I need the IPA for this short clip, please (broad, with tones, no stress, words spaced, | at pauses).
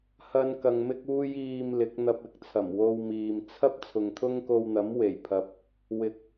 hɐ˥n kɐ˧ŋmɪ˥k̚uː˥j iː˧m lɪ˨˥k̚n̪ɐ˧p̚ɪ˨˥k̚t͡sʰɐ˨˩m wo˧wmiː˨m t͡sʰɐ˥p̚ t͡sʰʊ˨ŋt̪ʰʊ˥ŋko˧wn̪ɐ˨˥m we˨˩jpʰɐ˨p̚ | wɪ˧k̚